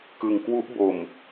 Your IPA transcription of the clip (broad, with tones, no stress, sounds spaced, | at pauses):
k ɯ˧ ŋ k w u˦˥ ʔ b o˧ m